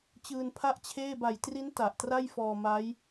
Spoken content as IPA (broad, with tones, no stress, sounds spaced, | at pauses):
t͡ɕ ɯː˧ n pʰ a˥˩ ʔ t͡ɕʰ eː˥˩ b a˨˩ j t r i˦˥ n t a˨˩ ʔ t r a˥˩ j f ɔː˧ m a˦˥ j